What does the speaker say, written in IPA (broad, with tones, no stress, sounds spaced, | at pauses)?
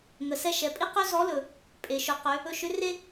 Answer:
ŋ ə˩˧ s ɛ˧ ʃ ɛ˩ pʼ i˥ q ø˥ z ɔ˧˥ l ɵ˩ | pʼ e˩ ʃ ʊ˩˧ q ø˩˧ | ɵ˧ ʃ ʏ˧˥ r e˥